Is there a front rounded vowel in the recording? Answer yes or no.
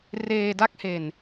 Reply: no